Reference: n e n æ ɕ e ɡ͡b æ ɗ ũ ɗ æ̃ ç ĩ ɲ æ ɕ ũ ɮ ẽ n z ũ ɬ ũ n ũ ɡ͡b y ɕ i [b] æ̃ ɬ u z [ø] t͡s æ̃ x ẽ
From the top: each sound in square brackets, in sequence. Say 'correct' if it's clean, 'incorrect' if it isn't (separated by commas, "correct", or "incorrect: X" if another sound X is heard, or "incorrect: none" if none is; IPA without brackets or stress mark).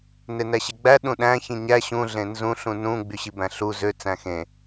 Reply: correct, correct